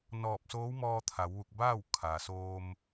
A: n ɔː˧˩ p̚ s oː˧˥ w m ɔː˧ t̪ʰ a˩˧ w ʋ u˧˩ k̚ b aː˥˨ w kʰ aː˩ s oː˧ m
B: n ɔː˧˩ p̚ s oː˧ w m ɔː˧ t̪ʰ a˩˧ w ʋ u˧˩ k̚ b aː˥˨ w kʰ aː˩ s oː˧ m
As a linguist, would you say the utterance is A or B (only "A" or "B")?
A